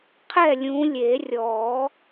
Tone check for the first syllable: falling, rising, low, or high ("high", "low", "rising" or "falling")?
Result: falling